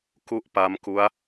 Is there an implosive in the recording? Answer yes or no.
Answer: no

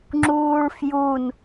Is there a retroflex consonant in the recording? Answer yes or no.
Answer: yes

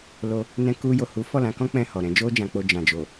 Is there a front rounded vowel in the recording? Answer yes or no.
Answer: no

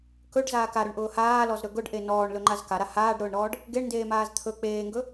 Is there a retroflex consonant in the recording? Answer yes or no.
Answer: yes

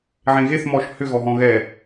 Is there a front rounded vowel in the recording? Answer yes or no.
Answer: yes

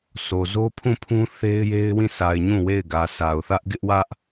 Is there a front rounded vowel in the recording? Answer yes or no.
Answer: no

